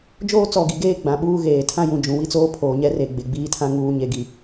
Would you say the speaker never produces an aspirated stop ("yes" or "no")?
no